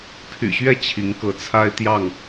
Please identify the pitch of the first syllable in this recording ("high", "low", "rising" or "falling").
low